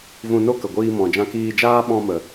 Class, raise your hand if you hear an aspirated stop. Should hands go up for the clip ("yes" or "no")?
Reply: no